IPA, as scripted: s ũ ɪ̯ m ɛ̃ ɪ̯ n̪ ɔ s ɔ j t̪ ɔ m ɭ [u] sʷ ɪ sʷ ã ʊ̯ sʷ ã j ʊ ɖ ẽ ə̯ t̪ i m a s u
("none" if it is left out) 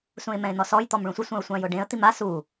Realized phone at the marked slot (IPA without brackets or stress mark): ũ